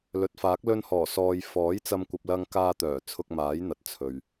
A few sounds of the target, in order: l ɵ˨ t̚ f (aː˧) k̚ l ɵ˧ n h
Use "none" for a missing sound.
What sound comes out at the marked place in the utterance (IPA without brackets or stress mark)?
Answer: aː˨˥